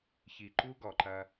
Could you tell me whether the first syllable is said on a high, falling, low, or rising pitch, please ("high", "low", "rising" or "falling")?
low